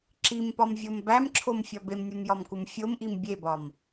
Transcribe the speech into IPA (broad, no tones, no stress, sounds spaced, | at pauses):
ǁ i m p ɒ m vʲ o m b æ m ǁʰ o m fʲ ɒ b e m nʲ u m j ɒ m k u m fʲ o m ʔ i m bʲ e b ɒ m